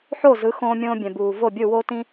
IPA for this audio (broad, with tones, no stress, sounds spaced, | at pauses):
ħ o˥˩ z ɯ˩˥ x õː˧ mʲ õː˧ bʲ ɛ̃˩ b uː˩ v o˥˩ bʲ ɯ˥˩ w o˥ t ĩ˥